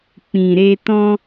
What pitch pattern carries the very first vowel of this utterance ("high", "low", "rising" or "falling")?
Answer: low